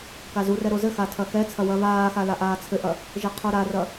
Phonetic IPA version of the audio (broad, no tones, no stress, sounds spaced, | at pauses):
k a z u r ɛ ɾ o z ɘ x a tʰ ɐ x ɛ t͡sʰ ɐ w ɐ β aː x a l a ʔ aː t͡sʰ ɘ ʔ ɐ | ʒ ɘ qʰ o ɾ a r ɐ